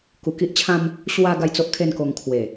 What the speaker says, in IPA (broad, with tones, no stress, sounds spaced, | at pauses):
k u˧ k i˦ ʔ t͡ɕʰ ã˦ m | ɕ w a˧ ɡ a˥˧ j t͡s o˦ ʔ kʰ e˥˧ n k o˧ ŋ kʰ w e˨˩